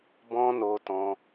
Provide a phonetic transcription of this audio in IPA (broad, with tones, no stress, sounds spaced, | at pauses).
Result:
b ɔ̃˧ n o˧ t ɔ̃˧